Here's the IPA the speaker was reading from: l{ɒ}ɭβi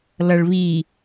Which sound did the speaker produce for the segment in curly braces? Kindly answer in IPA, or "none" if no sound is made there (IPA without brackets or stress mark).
ʌ